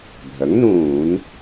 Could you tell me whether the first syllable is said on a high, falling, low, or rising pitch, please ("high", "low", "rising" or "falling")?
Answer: rising